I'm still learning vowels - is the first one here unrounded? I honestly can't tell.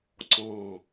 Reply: no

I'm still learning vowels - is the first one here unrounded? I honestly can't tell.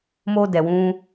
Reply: no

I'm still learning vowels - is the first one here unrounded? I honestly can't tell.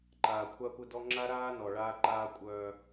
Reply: yes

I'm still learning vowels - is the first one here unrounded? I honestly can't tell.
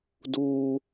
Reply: no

